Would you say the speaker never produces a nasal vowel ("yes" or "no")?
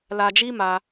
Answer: yes